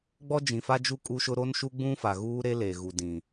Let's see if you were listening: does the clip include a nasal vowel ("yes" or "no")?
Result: yes